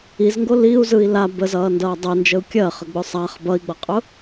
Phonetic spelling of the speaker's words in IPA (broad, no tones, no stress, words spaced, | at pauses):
izŋɡo liu̯zɯi̯ la bəzʌːndʌː dˤɜnd͡ʒəu̯ kʲɜχəɡ͡bʊ sˤaχ bʌi̯ɡ͡bʌqʼʊ